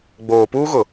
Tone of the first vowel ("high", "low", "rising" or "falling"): low